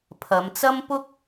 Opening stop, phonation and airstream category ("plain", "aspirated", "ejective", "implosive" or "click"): aspirated